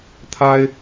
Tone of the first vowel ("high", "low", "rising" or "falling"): high